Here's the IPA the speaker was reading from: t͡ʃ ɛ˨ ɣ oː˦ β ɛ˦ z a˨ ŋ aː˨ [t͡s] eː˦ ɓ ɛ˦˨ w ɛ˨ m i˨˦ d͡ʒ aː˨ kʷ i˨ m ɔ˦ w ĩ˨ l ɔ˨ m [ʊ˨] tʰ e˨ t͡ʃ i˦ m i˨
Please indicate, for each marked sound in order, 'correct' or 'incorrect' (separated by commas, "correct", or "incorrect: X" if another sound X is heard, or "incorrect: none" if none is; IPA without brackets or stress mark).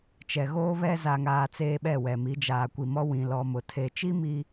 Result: correct, correct